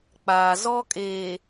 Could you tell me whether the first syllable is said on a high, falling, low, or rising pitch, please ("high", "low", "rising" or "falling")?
low